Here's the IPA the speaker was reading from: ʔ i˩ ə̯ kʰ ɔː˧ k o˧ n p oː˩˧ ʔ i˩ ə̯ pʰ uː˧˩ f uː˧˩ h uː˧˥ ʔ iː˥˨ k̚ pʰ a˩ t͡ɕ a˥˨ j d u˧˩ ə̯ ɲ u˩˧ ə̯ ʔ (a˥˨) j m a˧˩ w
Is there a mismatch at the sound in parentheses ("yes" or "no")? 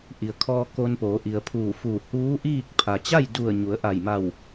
yes